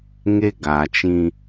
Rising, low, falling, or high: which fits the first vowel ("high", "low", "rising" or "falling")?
high